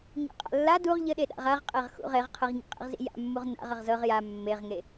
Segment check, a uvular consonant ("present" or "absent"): present